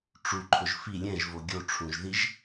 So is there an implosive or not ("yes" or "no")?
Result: no